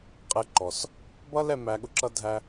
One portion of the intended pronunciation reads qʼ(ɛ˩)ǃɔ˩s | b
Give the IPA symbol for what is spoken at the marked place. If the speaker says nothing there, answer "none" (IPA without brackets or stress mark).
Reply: ɛ˧